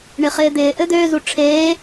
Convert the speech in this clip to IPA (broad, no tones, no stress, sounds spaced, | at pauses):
ɳ ɪ χ ɪː d̪ ɪː ʔ ɘ d̪ øː z u ʈ͡ʂʰ eː